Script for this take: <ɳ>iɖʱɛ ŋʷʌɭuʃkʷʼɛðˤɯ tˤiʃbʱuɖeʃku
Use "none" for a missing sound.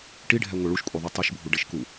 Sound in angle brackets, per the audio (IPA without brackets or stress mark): ʈ